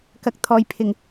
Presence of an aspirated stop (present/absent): present